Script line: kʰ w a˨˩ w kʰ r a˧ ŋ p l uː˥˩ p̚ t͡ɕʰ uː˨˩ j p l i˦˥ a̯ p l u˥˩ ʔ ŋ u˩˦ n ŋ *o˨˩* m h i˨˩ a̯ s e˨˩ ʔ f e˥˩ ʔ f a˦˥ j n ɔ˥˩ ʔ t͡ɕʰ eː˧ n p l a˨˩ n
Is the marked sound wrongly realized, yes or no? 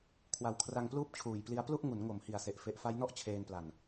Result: no